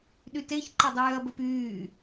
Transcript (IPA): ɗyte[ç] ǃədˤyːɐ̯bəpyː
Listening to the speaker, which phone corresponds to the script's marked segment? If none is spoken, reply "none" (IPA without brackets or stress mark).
ç